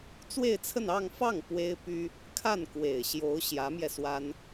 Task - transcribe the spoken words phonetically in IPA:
t͡swe˥˧ɪ̯t͡sʰə˥˧n ɑ˥˧ŋ fɑ˥˩ŋ pwe˥ɪ̯py˥ | kʰa˥˩nkwe˨˩ɪ̯ɕjo˧˥ʊ̯ ɕjä˧˥mjɛ˧swa˥n

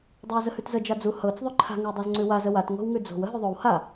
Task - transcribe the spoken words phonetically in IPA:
dˤawzəhʉtzə d͡ʒad͡zu hɤt͡s ðˤʉǃʰa̤ ŋəwdˤazŋ͡ǀʉwa zəwat ŋo̤wŋʉd͡zo̤w əɦʉðˤow ha

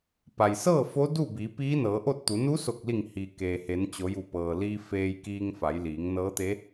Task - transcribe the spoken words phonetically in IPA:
pa˩jsɤː˥˨ fo˧˥ du˥˨bi˩˧ piː˧˥nɤː˩˧ʔo˥˨t̚t̪u˩˧ nu˧˥so˧˩k̚li˧˩ŋ hi˩ keː˩he˩˧nt͡ɕo˩˧ ju˧˩pɤː˩liː˧ feː˧jkiː˧ŋ fa˩˧jliː˩˧ŋnɤː˧˥t̪e˧˥

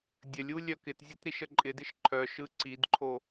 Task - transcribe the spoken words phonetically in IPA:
dʲəlʲ ulʲœkɪtzʲɯt ɾiʃəǃʼɪdɪʃ ǃʰœ ʃɯǀidǃʰo

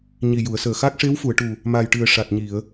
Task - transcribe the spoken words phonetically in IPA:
ɲi˨˩ju˨˩˨ə̯səː˨˩ xa˦˥k̚ʂe˧˥wfu˨˩˨ə̯ʈu˨˩ | ma˨˩jʈɨ˨˩ə̯ ʂa˨˩t̚ɲi˨˩˨ə̯

